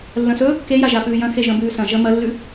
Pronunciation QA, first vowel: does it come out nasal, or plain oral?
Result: nasal